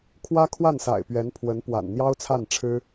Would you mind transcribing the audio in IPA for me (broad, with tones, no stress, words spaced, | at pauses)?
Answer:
kʰwä˥kʰwa˥˩nsa̰˨˩ɪ̯ pɥɛ˧˥npʰwə˧˥npwa̰˨˩n n̪jɑ˥ʊ̯t͡sʰa˥˩nʈ͡ʂʰɻ̩˥